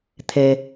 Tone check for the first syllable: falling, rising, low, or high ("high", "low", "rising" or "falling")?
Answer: low